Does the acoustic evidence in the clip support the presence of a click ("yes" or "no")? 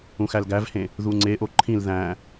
yes